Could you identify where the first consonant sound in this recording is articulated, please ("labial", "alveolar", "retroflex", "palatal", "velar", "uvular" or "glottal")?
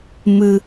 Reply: labial